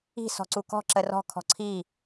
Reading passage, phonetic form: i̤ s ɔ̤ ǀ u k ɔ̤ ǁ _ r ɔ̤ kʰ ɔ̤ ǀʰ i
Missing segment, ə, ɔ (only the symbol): ə